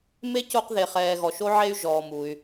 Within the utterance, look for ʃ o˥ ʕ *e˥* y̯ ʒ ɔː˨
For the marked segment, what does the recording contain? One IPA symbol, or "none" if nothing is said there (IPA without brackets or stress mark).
e˥